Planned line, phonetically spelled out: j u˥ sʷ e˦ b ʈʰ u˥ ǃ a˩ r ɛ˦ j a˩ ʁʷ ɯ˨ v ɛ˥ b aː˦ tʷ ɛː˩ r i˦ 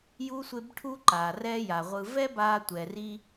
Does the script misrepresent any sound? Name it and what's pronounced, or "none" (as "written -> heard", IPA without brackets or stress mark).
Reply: none